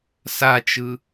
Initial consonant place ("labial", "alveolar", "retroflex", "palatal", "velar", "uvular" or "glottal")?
alveolar